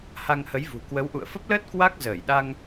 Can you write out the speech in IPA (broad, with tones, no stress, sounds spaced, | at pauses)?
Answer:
h a˧ ŋ h ə˨˦ j v ṳ˨˩ k w ə˨˦ w ʔ ṵ˧˨ ə̯ f ə˦˥ p̚ l əː˦˥ t̚ k w a˦˥ k̚ z əː˧˩ j ɗ a˧ ŋ